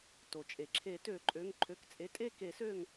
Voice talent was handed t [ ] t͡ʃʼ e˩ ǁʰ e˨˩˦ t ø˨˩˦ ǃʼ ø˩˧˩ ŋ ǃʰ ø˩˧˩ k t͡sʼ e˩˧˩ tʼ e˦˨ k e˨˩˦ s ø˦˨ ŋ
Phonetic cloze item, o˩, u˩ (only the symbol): o˩